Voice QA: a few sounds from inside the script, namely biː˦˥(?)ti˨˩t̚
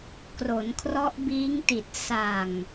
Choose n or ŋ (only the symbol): ŋ